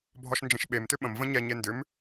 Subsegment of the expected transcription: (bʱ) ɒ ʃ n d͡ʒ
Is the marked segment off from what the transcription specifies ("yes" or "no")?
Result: no